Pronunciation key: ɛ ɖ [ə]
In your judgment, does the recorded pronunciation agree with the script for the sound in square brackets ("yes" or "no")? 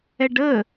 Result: yes